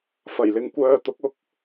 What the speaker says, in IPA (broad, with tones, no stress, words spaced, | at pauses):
fɐ˨˩jlɪ˨ŋkʷœː˧t̪ʊ˨˥k̚ ʊ˥k̚